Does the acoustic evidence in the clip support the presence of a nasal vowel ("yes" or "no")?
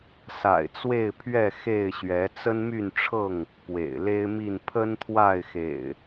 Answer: no